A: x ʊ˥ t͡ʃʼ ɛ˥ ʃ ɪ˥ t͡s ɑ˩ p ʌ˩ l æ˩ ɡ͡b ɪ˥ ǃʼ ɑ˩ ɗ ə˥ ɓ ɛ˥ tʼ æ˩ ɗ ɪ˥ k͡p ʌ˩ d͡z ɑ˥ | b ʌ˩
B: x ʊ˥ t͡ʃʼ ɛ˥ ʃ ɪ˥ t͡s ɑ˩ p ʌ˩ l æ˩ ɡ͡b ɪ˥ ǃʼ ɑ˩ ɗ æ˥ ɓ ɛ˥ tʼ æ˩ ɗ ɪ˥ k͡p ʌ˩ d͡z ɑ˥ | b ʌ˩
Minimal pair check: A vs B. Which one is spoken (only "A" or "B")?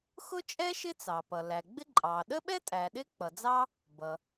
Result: A